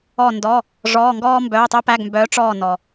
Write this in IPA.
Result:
ɔ˦˨ n d ɔ˧˥˧ | ʐ ɔː˧˥˧ ŋ ɡ ɔː˥ m b œː˧˥˧ tˤ œ˥ p æ˧˥˧ ɡ m b œː˧˥ ʈ͡ʂ ɔː˦˨ n ɔ˨

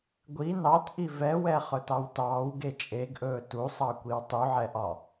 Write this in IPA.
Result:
ɡʷ i n ɑ t ʔ i v ɛ w ɛ χ ɵ t ɑ w t ɑː w ɡ e t͡ʃʼ e ɡ ʔ ɵː t u sˤ ɑ kʷ i w tˤ u ʕ ɛ ʔ ɒ

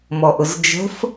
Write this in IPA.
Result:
m ɔ ʔ ʊ z d͡ʒ ə̤ f

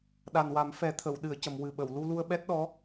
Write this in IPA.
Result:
ɗ a˨˩ n w a˨˩˦ m f ɛ˨˩˦ t̪ʰ ə˨˩˨ w ɗ ɨ˨˩˨ ə̯ c ə˨˩˨ m w ɨ˨˩ ɓ ə˨˩˨ w l u˧ l u˧ ə̯ ɓ ɛ˦˥ t̚ ɗ ɔ˧˥

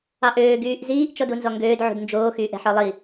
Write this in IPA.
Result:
ɑ ʔ øː ɡ yː ʔ z iː ʔ t͡ʃ ɔ d u n z ɔ ŋ ɡ øː d ʕ ṳ d n d͡ʒ oː x yː ʔ ɛ̤ ħ ɔ lˠ i

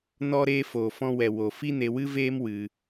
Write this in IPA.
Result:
n ɔ˧ ɾ eː˧ f oː˨ f ɔ̃˧ w ɛ˨ w o˨ f i˦ n e˧ w ɨ˦ v eː˦ m w ɨ˧

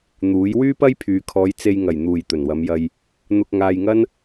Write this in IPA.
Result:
n̪ uː˨˥ j w yː˥ p ɐ˥ j pʰ yː˨ kʰ ɔː˨˧ j t͡s e˧ j ŋ ɐ˨˩ j n̪ uː˨˩ j t̪ ɵ˨˩ n w ɐ˨˧ m j ɐ˧ j | n̪ ʊ˧ k̚ ŋ aː˧ j ŋ ɐ˥ n

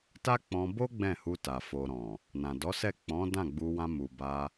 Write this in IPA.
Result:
t a˦ k͡p ɔ̃˧ b o˦ ɡ͡b ɛ̃˦˨ h u˧ t a˨ f o˨ ɾ ɔ̃˨ | n ã˨ d ɔ˨˦ s ɛ˦˨ k͡p ɔ̃˨˦ d ã˦˨ ɡ͡b u˧ w ã˧ m u˨ b a˧

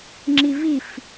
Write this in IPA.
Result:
ŋ͡ǁ i v i f

